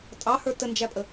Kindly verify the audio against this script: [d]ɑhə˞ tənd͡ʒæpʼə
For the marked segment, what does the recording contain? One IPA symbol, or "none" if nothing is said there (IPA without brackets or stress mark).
tʼ